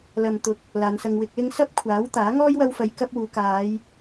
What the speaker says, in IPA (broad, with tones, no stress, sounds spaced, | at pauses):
l ɐ˨ m t̪ ʊ˨˥ k̚ | l aː˨˧ n s ɐ˧ ŋ w ɪ˧ k̚ l ɪ˥ ŋ s ɐ˥ p̚ kʷʰ aː˨˥ w t̪ aː˨˥ ŋ ɔː˥ j w ɐ˥ w f ɐ˧ j k ɐ˥ p̚ w uː˨˧ k aː˨˧ j